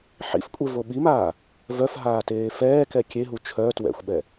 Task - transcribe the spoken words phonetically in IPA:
ħ ḭ f kʷʼ e v o ɓ i m aː | v œ f ɦ aː t eː f ɛː k ɛ kʲ e ɦ u t͡ʃʰ œ t w ɛ̰ xʷ ɓ ɛ

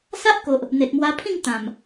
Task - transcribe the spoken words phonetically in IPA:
s a˦ ʔ k o˨ ʔ | n̪ e˨ t̚ m w a˧ pʰ ĩ˥˧ ŋ t̪ ã˨˩ m

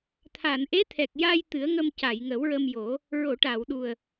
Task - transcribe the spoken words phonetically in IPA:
t̪ʰ a˨˩˨ n ʔ e˧˥ t̪ʰ ɛ˨˩ k̚ j a˧ j t̪ ɨ˨˩˦ ə̯ ŋ ə˧ m c a˨˩˨ j ŋ ə˨˩˦ w ɹ ə˧ m j o˨˩˦ | ɹ o˨˩˨ ʈ a˨˩˨ w ɗ u˨˩ ə̯

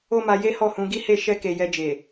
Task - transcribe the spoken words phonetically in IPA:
o˦ m a˧ j e˦ h ɔ˦˨ h ũ˨˦ ɡ i˦ h e˦˨ ʃ ɛ˧ k e˨ j ɛ˧ d͡ʒ e˨

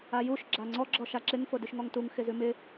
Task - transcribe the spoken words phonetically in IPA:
a j u ʃ ɡ͡ǁ a ŋ͡ǀ ɔ ɡ͡ǁ ɔ ʃ a ǁ ɪ ŋ f o d ʉ ʃ ŋ ɔ ŋ t u ŋ x ɪ z ʉ m ɪ

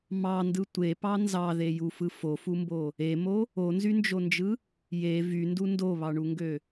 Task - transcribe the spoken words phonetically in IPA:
m ɑ n d ɯ tʷ e p ɑ n z ɑ ð e j u f ɯ f o f u m b o | e m o | o n z y n d͡ʒ o n d͡ʒ ɯ | j e v y n d u n d o β ɑ ɳ u ŋ ɡ ø

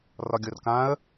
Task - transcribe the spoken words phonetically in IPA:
r ɒ ɡʲ o r k ã ə̯

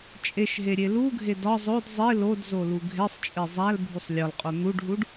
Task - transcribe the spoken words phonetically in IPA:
t͡ʃʼ e ʃ ɦ e ɾʲ e l u ɡʱ e d ɒ zˤ o d zˤ e l o d z o l u ɡʱ e sˤ t͡ʃʼ e zˤ æ l bʱ u sˤ lʲ ɒ l qʼ o n̪ u ɖ ɦ u ɖ

